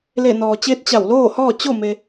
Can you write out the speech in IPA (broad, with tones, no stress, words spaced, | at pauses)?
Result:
le˧˩ nɔː˩t͡ɕeː˧˥t̚ t͡ɕa˧˩wloː˥˨hɔː˥˨ t͡ɕo˥˨me˧